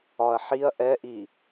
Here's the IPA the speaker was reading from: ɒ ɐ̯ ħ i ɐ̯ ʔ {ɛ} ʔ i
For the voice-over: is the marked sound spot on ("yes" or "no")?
yes